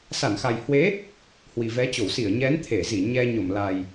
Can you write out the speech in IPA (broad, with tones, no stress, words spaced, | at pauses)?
sa˧˩nxa˨˩jhwe˨˦ | hwi˨˩vɛ˨˦t͡ɕo˧˩w si˧˩ə̯ɲɛ˨˦n t̪ʰe˧˩zi˧˩ ɲɛ˧ɲo˧˩mla˨˩j